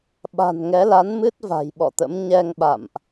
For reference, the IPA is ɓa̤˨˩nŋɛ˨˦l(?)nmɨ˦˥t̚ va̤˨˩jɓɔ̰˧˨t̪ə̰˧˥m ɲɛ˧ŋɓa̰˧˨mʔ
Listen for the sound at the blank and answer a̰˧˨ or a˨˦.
a˨˦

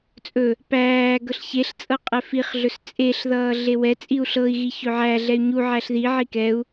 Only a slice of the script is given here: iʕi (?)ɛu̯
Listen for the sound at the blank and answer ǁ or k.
k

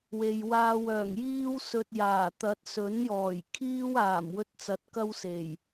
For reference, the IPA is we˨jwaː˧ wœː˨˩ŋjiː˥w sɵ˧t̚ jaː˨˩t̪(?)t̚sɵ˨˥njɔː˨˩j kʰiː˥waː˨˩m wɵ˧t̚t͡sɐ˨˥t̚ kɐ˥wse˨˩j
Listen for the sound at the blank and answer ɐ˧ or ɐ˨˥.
ɐ˨˥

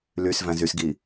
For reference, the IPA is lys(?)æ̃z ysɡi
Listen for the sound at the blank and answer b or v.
v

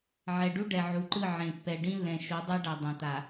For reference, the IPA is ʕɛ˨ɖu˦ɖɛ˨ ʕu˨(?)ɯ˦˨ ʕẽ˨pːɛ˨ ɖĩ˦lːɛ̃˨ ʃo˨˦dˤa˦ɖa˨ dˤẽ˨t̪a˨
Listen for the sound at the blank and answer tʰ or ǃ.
ǃ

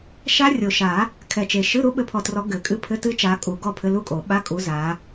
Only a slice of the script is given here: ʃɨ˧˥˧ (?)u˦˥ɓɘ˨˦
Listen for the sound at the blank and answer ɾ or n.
ɾ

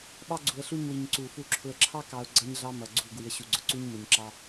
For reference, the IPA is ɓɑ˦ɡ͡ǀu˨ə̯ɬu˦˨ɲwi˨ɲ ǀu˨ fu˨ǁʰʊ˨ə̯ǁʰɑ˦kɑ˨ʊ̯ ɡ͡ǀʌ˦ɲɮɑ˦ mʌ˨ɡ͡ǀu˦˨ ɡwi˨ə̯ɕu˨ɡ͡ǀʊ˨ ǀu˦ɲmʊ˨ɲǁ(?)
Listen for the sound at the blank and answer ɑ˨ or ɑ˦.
ɑ˦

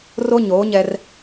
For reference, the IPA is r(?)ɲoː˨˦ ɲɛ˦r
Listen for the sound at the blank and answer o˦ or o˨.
o˦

